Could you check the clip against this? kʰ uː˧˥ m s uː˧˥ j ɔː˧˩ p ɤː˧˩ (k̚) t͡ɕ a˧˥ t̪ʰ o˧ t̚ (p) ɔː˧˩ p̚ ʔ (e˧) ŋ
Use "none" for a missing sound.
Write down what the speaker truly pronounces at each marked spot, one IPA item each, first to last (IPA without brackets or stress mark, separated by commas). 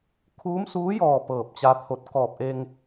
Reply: p̚, k, e˧